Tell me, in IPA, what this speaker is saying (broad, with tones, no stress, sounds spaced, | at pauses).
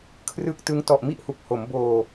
kʰ r ɯː˦˥ k̚ t ɯ˦˥ ŋ t ɔ˨˩ ʔ m i˥˩ ʔ h u˨˩ k̚ h o˩˦ m b oː˧